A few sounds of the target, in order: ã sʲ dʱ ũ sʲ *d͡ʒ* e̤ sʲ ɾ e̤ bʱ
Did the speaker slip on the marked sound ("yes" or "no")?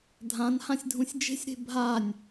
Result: no